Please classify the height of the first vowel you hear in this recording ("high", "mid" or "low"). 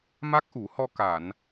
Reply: low